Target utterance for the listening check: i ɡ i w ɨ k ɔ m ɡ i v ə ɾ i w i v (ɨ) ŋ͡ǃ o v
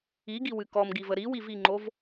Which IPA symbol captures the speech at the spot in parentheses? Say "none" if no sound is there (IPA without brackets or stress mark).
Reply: i